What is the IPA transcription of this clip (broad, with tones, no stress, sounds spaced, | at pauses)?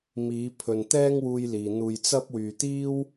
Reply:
m iː˨˧ pʰ ɵ˨ n t̪ ɛː˥ ŋ w uː˧ j l iː˨ n̪ uː˧ j t͡s ɐ˥ p̚ w yː˨ t̪ iː˥ w